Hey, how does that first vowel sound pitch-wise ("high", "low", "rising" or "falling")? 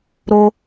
high